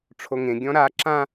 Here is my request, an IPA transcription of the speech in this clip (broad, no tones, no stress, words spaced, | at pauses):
ʈ͡ʂʰoŋẽ ɡʲɔ̃ɾa ǁã